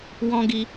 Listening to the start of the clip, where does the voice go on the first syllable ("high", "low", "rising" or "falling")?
high